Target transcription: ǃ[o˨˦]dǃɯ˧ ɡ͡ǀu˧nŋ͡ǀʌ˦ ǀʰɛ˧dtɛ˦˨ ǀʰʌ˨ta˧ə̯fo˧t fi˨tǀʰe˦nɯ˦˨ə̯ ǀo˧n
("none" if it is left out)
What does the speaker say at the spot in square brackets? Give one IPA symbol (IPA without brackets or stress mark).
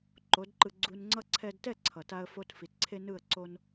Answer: o˨˦